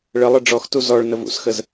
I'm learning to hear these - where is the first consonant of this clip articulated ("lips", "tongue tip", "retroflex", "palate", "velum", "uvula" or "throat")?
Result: retroflex